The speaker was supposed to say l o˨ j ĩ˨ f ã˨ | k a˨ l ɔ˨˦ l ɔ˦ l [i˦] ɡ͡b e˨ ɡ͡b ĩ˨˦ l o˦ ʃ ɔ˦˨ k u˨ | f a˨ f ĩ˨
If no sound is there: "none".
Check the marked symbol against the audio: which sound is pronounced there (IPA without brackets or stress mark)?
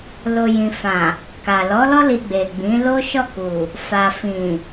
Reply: i˧